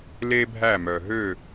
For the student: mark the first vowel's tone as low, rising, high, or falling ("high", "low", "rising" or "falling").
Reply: high